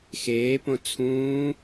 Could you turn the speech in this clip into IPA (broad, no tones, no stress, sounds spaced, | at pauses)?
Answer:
x eː p õ t͡sʰ ũː